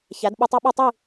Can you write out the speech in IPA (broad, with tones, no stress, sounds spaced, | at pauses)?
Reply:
ç æ˨˦ d ɓ u˧ tˤ a˦ ɓ u˦˨ tˤ i˦˨